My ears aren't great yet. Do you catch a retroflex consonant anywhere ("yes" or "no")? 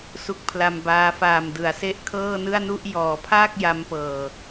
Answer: no